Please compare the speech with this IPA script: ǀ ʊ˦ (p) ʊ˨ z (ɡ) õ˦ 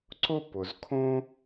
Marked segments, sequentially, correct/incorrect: correct, incorrect: kʰ

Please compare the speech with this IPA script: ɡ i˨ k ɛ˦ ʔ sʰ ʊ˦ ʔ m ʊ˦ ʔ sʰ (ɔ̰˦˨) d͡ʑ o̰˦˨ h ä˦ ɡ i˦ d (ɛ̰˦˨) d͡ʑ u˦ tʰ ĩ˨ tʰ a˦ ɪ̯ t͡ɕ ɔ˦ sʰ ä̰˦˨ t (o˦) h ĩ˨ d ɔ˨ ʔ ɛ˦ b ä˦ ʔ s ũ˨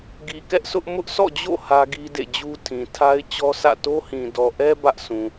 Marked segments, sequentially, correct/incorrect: correct, incorrect: ḛ˦˨, correct

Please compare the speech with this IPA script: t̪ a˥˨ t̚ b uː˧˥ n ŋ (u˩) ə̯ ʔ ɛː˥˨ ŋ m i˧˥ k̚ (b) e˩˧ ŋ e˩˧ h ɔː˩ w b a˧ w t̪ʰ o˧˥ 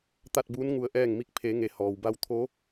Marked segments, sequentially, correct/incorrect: incorrect: u˧, incorrect: pʰ

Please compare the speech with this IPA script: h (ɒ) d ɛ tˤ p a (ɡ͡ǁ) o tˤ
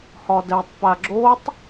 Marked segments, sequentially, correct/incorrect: correct, correct

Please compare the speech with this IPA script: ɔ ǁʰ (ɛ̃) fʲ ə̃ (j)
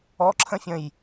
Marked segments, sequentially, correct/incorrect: incorrect: ə̃, correct

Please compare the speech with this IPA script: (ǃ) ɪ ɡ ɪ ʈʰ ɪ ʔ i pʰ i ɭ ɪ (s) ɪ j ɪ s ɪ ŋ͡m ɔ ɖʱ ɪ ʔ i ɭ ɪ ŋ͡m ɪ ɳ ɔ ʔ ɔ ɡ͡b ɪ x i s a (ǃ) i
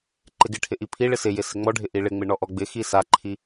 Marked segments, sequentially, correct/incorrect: correct, correct, incorrect: ǃʰ

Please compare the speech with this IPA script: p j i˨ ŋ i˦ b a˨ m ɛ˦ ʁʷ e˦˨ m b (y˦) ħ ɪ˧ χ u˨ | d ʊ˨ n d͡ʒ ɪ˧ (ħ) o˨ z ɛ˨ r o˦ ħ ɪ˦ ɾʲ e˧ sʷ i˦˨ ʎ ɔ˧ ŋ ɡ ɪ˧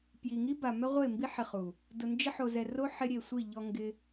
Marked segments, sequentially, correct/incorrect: incorrect: i˦, correct

